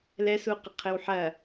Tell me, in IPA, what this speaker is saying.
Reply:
lɛsuqɐ qʰɘwħɐ

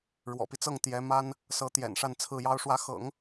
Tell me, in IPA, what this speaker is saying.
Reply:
ɻwɔ̰˨˩pi˦t͡sɤ˥˩ŋ t̪jɛ˧˥ma˥n | sɤ˧˥t̪jɛ̰˨˩n ʂa˥˧nt͡sʰɹ̩˥˩jɑ˥ʊ̯ ʂwä˧˥xɤ̰˨˩˦ŋ

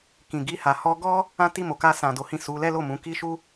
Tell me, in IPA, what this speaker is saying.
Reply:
kĩ˨ɡi˧ha˨ hɔ˧ ɡɔ˦ | ã˦ti˦˨mo˨ ka˧sã˨ do˨˦hĩ˦˨ su˨˦ lɛ˦lo˦˨ mũ˨˦ki˦ʃu˦

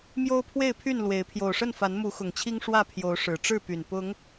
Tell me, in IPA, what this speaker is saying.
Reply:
mjo˦ʊ̯pʰwe˥˨ɪ̯pʰy˥˨n lwe˨˦ɪ̯ pʰjo˨˩ʊ̯ʂə˥˨n fa˨˦nmu˨˦xʊ˨˩ŋt͡ɕʰi˦ŋ ʂwä˥˨ pʰjo˨˦ʊ̯ ʂɻ̩˨˩ ʈ͡ʂɻ̩˥˨py˨˩n pʊ˨˦ŋ

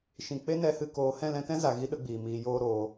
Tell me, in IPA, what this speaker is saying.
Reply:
ʃĩ˨ k͡pe˦nɛ˧hɨ˧ koː˧ hɛ̃˦˨lɛ̃˧tɛ̃˦za˨ ɣi˦ɗə˦ɡ͡biː˨ miː˨joː˧ ɾoː˧

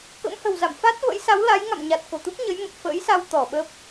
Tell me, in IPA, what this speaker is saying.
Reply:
kə̰˧˥mhə̤˨˩wza̰˧˨m fa˦˥t̚və̰˧˥j sa˨˦wla˨˦j ŋa̰˧˨m ɲa˨˩t̚ ko˧˩t̪u˦˥k̚ɲə˨˦j mə˨˩p̚fə̰ː˧˥jsa˧w t̪ɔ˧˩ɓə˦˥p̚

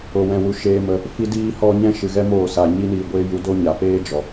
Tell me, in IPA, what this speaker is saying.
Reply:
o˨wɛ̃˨wu˨ ʃeː˧mə˧ | fi˧diː˧hɔ˧ ɲɛ̃˦ʃɨ˨ɣɛ˦ moː˦˨sa˨ ɲi˦niː˧ɡʷeː˦ ju˧do˦ɲa˨ peː˦ d͡ʒɔ˨

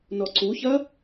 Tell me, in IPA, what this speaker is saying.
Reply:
nɔǀuçɐ

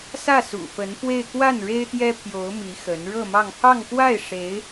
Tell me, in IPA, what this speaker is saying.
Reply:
sä˥˩sṵ˨˩fə˧˥nfwe˥˧ɪ̯ kwa˥˩nɻe˥ɪ̯ t̪jɛ˥pʰjo˧˥ʊ̯mi˧˥ xə˧˥n ɻɤ˥˧mɑ˥˧ŋ pʰɑ˥˧ŋkwa˥˩ɪ̯ ʂe˧˥ɪ̯

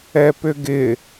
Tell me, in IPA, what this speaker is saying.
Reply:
ɛpʏɡɪ

